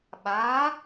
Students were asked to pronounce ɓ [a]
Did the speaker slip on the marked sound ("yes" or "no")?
no